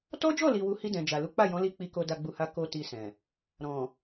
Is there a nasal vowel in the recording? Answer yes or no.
yes